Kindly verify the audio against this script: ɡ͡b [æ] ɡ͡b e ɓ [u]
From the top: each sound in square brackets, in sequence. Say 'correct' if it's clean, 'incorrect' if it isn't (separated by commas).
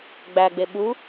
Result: correct, correct